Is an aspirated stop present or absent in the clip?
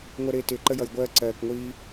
absent